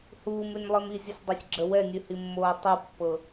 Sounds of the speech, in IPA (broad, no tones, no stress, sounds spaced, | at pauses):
h uː m ʉ nʲ lˠ i m i zʲ ə sʲ dˤ ɤ sʲ ɡ͡ǁ ə w ɛ nʲ ʉ h i mː oː tˤ u pː ɤ